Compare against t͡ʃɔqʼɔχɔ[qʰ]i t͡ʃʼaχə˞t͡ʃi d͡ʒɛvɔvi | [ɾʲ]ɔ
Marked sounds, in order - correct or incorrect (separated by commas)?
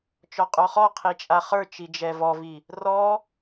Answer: correct, incorrect